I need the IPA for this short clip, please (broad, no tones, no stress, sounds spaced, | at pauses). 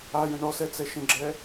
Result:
a j ə̃ ɳ ɔ s ɛ t͡s ɛ ʃ ə̃ ɡ͡ǁ ɛ